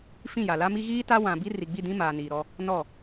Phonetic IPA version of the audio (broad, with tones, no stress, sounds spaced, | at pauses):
f ĩ˦˨ j a˨ l a˦ m i˦ ɣ iː˦ t a˦ w ã˨ b i˦ r i˨ ɡ͡b i˦˨ d ĩ˦ m aː˨ n iː˨ ɾ ɔ˦ | n ɔ˦˨